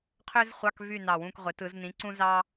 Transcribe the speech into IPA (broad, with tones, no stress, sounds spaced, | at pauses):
qʰ ø˥ z χʷ ɑ˧˥˧ k v y˦˨ n ɑ˨˩ w ũ˦˨ k ʁʷ e˩˧ t ɯ˩˧ z n ĩ˨˥ ǀ ũ˥ z ɑ˥